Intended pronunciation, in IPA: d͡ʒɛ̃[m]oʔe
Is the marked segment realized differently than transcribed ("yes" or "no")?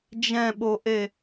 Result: yes